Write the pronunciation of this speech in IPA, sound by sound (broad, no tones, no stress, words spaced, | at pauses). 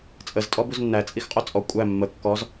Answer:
t͡sʼəztʼɔ buznːæt͡sʼixqʼo t͡sʼɔ kʷʼæ mːə kːɔz